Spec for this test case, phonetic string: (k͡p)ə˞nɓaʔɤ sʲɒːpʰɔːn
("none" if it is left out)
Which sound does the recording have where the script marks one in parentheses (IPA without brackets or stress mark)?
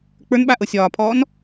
k͡p